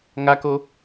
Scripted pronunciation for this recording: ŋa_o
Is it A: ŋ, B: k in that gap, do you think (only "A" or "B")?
B